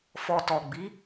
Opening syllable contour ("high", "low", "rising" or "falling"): low